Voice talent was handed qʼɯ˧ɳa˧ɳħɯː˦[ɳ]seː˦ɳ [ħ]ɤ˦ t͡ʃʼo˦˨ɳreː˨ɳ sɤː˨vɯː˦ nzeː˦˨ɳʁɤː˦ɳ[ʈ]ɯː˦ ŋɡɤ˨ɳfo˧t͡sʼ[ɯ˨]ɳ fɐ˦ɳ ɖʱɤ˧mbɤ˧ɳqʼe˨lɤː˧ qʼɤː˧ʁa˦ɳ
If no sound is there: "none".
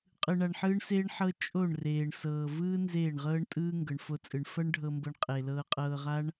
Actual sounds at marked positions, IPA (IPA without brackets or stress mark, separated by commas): ɳ, ħ, tʼ, ɯ˨